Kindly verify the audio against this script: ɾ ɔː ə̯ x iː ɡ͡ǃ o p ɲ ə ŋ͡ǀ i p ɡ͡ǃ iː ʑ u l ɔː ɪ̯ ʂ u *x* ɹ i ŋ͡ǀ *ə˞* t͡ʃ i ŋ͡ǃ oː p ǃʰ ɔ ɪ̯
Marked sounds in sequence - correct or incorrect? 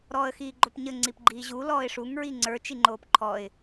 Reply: incorrect: ŋ, correct

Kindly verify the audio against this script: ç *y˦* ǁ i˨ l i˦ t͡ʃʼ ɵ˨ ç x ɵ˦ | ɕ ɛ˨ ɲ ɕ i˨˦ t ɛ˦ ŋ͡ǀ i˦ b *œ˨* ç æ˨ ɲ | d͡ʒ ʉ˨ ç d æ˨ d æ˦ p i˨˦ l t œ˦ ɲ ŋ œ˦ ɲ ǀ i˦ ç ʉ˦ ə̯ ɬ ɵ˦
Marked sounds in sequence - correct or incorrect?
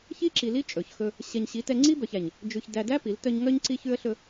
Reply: incorrect: i˦, correct

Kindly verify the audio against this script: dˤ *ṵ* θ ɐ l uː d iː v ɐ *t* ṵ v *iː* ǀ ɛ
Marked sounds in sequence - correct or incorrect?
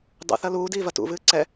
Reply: correct, correct, incorrect: ɨː

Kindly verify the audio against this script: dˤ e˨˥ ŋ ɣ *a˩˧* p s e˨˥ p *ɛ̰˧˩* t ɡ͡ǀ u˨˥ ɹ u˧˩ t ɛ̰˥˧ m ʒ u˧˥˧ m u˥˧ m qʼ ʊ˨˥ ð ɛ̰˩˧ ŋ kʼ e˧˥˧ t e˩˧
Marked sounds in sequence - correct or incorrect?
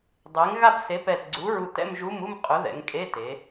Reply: incorrect: a˥˧, incorrect: ɛ˧˩

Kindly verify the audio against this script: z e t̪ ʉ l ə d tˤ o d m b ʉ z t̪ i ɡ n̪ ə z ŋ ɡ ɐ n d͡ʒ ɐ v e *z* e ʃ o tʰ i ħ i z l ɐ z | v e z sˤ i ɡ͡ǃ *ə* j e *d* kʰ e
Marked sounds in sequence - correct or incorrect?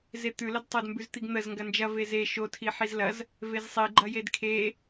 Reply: correct, incorrect: ɐ, correct

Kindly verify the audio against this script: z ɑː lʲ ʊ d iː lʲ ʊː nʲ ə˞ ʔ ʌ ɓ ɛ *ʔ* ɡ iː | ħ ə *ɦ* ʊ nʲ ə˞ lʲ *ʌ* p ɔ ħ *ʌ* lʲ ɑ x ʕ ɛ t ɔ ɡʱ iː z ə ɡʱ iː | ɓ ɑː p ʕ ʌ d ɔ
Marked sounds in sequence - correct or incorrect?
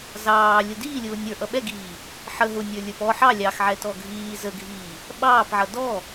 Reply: incorrect: none, correct, incorrect: ə˞, incorrect: ɑ

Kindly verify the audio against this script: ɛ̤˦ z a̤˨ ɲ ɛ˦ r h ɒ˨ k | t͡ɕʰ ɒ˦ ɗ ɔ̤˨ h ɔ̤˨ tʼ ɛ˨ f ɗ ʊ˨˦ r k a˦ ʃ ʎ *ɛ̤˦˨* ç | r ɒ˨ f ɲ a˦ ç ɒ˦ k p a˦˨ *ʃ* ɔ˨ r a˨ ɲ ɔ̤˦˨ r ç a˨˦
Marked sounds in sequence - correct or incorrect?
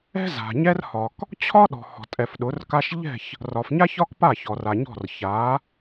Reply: correct, incorrect: ç

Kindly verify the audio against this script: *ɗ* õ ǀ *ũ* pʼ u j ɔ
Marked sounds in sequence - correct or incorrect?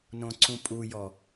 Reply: incorrect: n, correct

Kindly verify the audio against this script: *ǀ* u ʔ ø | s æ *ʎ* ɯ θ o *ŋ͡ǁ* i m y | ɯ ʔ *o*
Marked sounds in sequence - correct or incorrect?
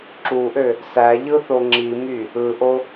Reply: incorrect: ǁ, correct, correct, correct

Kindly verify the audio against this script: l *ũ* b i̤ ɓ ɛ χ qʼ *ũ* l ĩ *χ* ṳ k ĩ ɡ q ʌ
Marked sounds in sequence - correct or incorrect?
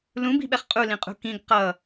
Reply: correct, incorrect: u, incorrect: qʼ

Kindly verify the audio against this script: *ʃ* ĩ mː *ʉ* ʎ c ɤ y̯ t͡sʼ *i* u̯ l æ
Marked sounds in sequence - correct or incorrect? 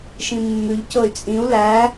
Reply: correct, correct, incorrect: ĩ

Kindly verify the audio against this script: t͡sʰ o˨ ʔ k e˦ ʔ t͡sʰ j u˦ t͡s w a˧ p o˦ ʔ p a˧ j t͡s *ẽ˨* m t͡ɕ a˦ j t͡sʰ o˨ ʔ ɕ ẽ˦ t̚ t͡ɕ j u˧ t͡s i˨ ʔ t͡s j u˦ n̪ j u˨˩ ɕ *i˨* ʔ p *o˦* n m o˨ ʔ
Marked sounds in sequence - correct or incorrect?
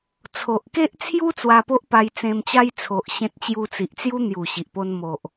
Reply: incorrect: ẽ˧, correct, correct

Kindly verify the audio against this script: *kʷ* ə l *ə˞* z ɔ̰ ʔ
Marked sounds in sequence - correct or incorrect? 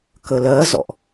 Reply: incorrect: k, incorrect: ɜ

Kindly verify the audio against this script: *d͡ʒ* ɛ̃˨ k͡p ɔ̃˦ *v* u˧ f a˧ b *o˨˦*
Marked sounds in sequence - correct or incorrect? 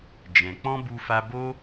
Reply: correct, incorrect: b, incorrect: o˦

